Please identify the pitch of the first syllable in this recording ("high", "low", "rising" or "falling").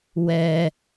low